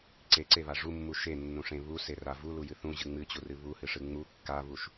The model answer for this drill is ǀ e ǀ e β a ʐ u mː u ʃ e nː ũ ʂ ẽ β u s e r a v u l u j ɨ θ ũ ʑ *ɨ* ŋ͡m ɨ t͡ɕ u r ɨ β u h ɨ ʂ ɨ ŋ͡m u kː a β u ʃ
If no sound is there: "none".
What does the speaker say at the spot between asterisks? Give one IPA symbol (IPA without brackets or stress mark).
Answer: ɨ